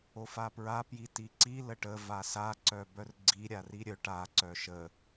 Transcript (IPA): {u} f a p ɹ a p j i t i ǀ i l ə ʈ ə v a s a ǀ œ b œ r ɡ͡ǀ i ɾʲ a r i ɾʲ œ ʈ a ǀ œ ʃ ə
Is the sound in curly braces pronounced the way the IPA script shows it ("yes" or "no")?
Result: no